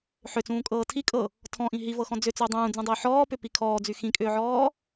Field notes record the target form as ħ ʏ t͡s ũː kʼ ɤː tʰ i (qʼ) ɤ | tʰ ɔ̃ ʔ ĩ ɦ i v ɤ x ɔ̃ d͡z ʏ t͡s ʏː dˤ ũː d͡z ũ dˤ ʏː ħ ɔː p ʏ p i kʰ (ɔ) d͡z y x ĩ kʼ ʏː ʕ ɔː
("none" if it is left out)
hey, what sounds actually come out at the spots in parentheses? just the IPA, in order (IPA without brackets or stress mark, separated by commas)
kʼ, ɔː